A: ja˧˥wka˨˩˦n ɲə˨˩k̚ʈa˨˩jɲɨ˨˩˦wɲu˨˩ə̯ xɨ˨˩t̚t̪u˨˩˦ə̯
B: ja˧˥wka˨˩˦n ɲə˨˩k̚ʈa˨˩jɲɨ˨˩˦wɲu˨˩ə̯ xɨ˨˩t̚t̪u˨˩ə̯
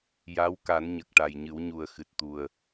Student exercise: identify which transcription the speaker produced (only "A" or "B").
B